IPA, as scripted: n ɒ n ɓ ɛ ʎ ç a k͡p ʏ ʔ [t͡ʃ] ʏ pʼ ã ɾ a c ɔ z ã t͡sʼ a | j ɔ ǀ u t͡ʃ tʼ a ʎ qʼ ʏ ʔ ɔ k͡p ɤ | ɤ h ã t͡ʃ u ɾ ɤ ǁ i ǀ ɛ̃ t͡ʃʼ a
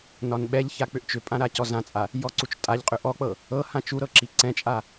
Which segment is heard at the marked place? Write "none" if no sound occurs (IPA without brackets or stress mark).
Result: t͡ʃ